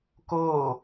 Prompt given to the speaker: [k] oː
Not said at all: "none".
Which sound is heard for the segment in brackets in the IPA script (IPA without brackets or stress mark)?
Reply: k